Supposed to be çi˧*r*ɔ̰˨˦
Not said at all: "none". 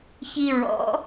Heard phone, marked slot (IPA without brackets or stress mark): ɹ